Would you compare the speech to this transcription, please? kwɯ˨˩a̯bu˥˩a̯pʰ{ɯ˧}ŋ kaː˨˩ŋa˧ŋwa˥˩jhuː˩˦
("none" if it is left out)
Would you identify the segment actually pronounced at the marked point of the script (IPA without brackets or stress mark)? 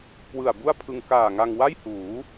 ɯ˧